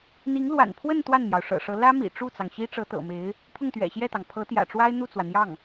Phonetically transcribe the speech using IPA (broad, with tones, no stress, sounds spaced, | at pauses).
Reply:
n̪ i˧˥ ŋ l w a̰˨˩ n pʰ w ə˥˧ n t̪ w a˥˩ n m j ɑ˩ ʊ̯ ʂ ɤ̰˨˩ ʂ ɤ˧˥ l ä˥ m ḭ˨˩ ʈ͡ʂ u˥˩ t͡s ɑ˩ ŋ ɕ i˥ ʈ͡ʂ ɤ˧˥ t̪ ɤ̰˨˩ m e˧˥ ɪ̯ | pʰ ʊ˥˩ ŋ t̪ ɥ ɛ̰˨˩ ɕ j ɛ˥˩ t̪ ɑ˩ ŋ pʰ ɤ˧˥ t̪ j ä̰˨˩ ʈ͡ʂ w a˥ ɪ̯ n̪ u˥˩ t͡s w ä˩ n̪ j ɑ˥˩ ŋ